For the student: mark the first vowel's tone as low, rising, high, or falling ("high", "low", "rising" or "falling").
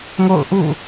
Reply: falling